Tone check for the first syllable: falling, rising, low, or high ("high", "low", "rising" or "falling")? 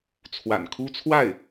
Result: low